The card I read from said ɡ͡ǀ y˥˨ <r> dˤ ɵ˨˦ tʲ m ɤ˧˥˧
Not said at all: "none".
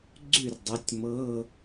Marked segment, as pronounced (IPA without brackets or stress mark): r